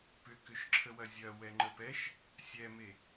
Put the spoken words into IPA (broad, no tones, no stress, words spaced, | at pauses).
pʏkʏʃǁʰəwɐ zʲɐ wɛŋ͡ǃəpɛʃ | sʲɛme